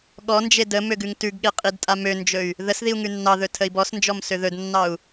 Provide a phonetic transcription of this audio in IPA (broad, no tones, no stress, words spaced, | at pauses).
ɠɔnd͡ʒe də møɡʉŋtʉɡɠe qʼidtʼamønd͡ʒɵy̯ | ðəsðiu̯ ŋʉnːɑðɵ tʰəi̯bɔsnd͡ʒɔm søðɵdnːɑu̯